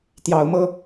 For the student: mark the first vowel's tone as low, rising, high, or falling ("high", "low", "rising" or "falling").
rising